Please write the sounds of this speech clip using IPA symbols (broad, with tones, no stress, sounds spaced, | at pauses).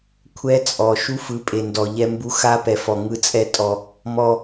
kʷʰ ɛ˦ t͡sʼ ɔ˨ ʃ u˦ f ɯ˨˦ pʼ e˨ n d ɔ˨ ʎ ɛ˦ m b u˦ x a˦ p ɛ˨ f ɔ˨ ŋ ɯ˦ t͡sʼ ɛ˦ tʼ ɔ˦ | m ɔ˦